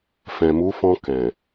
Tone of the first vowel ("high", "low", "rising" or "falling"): low